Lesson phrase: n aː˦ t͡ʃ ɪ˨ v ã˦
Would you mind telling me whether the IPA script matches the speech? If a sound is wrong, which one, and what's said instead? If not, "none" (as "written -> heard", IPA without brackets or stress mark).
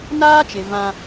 none